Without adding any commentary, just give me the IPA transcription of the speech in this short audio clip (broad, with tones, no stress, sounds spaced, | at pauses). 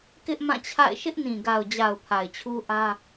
k ɪ˦ ʔ m ã˦˨ t͡ɕʰ a̰˦˨ ɪ̯ ʃ ɪ˦ ʔ n ĩ˨ ɡ a˨ ʊ̯ d͡ʑ a˨ ʊ̯ pʰ a˨ ɪ̯ t͡ɕʰ u˦ ʔ ä˦